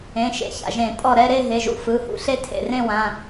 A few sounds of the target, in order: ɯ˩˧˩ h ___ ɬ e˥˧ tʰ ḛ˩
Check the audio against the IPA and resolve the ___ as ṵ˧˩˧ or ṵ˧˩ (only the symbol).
ṵ˧˩˧